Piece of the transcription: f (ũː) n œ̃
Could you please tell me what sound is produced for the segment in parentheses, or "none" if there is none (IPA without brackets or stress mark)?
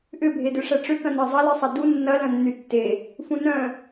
ũ